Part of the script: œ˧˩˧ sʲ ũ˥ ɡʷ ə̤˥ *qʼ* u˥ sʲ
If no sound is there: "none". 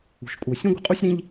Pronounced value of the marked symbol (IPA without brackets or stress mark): qʼ